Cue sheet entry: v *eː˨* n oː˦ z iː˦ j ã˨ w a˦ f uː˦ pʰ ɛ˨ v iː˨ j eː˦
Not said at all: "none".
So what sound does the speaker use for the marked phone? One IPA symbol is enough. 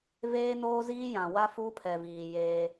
eː˦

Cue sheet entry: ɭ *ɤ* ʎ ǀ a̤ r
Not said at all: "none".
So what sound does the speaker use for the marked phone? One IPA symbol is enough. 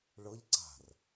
ɤ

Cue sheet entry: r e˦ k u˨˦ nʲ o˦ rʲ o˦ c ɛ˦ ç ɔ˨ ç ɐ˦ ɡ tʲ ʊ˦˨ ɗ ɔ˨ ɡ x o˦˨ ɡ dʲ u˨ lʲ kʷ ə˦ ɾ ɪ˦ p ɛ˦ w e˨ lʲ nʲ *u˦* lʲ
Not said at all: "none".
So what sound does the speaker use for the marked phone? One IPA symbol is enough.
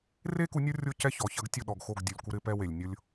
ʊ˦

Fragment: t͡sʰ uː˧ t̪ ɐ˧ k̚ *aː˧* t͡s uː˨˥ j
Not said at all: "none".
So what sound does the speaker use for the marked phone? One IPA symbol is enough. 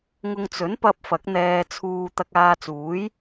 aː˧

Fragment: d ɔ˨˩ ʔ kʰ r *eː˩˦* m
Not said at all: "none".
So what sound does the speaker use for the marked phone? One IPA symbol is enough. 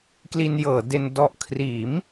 iː˩˦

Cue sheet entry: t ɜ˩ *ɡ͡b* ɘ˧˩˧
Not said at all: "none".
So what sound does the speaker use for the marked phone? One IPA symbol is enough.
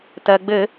ɡ͡b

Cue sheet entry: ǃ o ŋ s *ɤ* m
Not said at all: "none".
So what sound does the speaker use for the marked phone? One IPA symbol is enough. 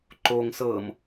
ɤ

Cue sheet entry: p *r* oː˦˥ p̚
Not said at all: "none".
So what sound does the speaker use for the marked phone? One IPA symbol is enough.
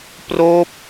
r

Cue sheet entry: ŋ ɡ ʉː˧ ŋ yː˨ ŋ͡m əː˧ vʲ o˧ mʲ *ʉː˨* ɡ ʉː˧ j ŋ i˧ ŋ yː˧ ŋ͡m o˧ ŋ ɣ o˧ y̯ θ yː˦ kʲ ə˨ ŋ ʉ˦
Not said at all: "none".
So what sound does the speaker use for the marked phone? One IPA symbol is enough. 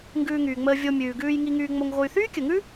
ʉː˨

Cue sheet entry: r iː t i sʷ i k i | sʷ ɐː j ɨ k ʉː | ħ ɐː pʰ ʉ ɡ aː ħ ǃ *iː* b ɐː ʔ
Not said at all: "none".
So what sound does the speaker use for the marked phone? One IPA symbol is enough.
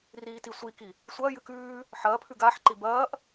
i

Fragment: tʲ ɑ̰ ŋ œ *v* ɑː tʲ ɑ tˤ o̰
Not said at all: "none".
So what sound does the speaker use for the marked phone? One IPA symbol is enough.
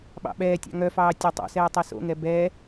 f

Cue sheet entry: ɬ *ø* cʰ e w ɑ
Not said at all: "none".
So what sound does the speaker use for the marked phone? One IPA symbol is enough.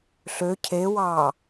ø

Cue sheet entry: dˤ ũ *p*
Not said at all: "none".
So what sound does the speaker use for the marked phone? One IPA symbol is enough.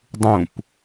p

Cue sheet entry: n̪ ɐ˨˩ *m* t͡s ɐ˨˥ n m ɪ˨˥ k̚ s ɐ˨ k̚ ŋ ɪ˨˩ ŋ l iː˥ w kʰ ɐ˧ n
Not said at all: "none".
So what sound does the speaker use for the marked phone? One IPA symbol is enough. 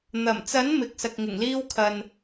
m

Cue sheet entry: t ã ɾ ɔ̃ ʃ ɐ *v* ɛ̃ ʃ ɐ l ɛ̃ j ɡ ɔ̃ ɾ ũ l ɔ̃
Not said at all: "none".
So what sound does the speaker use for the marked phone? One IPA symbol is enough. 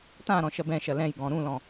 b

